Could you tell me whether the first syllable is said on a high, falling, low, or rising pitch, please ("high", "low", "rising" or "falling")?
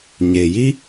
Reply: low